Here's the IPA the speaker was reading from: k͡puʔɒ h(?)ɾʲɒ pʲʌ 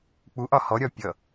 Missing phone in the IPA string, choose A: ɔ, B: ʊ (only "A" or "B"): A